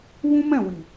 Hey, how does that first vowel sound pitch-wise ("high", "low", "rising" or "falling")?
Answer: high